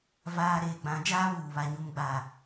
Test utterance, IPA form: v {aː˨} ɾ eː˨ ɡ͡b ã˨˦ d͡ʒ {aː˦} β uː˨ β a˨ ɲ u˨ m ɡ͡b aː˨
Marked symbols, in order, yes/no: yes, yes

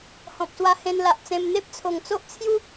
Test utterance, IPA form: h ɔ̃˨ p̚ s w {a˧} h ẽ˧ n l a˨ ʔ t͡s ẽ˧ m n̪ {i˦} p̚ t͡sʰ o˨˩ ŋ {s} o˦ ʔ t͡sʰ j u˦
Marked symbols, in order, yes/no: yes, no, no

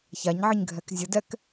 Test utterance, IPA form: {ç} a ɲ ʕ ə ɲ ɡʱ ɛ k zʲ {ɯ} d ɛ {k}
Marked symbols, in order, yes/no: yes, no, yes

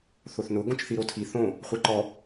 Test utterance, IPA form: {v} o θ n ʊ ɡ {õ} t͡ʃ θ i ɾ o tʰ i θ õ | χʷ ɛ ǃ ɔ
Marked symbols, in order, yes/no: no, yes

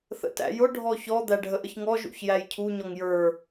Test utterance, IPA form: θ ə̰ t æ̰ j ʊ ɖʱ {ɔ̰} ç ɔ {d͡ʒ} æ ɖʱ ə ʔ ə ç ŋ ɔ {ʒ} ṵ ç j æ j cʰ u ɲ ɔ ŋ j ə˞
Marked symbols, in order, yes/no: no, no, yes

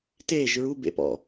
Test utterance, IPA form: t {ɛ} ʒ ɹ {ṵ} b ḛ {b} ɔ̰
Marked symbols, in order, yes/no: no, no, no

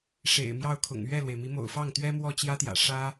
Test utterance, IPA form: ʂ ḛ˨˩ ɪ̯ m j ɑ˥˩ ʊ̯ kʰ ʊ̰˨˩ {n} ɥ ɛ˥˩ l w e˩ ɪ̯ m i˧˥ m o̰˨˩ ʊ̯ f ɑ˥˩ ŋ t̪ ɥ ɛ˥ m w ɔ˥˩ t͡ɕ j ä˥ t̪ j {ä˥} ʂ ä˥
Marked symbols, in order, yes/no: no, no

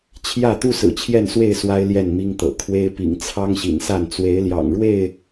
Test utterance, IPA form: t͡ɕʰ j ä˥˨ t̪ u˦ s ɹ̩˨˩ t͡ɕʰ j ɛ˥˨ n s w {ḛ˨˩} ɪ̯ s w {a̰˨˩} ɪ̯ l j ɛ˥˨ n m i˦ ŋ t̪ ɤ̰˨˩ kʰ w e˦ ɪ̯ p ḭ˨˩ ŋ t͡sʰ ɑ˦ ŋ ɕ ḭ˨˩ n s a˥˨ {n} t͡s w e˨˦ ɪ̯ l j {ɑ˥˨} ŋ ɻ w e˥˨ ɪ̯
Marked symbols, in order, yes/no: no, no, yes, no

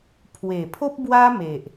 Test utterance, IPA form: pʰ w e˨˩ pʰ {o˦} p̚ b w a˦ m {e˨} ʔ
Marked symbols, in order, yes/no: yes, yes

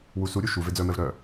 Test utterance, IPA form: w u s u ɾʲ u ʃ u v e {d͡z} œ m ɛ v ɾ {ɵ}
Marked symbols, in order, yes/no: yes, no

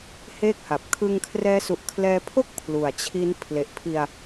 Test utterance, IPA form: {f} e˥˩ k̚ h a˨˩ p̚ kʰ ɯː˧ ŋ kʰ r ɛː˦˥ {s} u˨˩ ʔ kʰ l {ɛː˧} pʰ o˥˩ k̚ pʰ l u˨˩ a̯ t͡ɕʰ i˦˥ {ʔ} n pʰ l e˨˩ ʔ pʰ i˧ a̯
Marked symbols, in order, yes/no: no, yes, yes, no

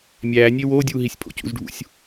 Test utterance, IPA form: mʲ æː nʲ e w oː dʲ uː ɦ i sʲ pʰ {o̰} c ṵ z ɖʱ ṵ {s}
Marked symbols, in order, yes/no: yes, no

